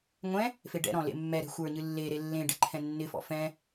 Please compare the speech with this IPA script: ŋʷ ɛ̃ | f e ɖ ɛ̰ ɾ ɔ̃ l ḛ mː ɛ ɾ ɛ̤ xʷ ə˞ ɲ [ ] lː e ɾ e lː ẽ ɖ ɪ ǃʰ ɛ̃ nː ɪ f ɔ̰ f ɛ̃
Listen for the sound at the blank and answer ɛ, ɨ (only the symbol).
ɨ